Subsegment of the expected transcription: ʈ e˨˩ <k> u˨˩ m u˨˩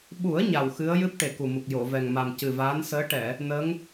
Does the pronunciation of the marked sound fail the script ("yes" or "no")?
no